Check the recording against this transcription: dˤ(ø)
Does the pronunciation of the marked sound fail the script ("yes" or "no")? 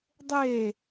yes